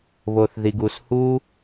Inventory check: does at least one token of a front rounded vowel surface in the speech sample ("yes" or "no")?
no